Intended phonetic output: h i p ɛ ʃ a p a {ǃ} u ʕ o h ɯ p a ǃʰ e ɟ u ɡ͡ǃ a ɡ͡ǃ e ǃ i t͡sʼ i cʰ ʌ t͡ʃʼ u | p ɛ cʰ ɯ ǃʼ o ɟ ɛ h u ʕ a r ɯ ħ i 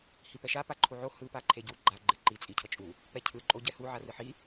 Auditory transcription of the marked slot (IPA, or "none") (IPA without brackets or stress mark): ǃʰ